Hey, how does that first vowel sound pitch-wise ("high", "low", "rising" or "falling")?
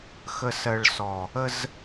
low